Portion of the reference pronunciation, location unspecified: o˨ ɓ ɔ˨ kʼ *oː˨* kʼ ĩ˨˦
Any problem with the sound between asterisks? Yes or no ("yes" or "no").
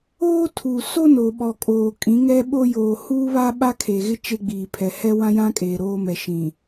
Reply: no